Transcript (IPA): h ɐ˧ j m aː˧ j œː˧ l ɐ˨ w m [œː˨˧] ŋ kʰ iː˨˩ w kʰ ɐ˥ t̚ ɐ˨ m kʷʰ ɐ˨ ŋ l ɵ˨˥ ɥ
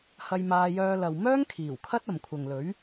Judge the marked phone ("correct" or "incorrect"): incorrect